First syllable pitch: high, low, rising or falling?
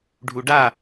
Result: low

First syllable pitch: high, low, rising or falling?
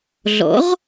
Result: rising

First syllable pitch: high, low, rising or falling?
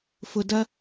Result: low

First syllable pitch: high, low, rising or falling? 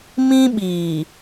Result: high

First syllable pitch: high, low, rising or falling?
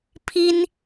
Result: high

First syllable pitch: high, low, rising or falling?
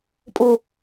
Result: low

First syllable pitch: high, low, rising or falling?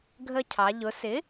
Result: high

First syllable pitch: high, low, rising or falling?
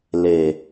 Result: low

